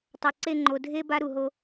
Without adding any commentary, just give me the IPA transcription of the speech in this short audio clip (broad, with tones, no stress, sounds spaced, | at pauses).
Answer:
tˤ a˨ ǀ e˦˨ ŋ͡ǃ o˨ dʱ e˦ b a˦ ɾ u˨ ɦ o˦